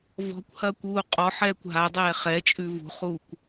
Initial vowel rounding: rounded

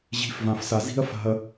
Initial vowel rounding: unrounded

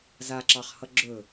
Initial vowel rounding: unrounded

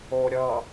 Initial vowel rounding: rounded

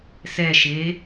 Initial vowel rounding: unrounded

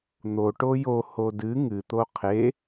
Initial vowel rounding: rounded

